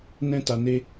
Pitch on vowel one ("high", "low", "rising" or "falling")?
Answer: high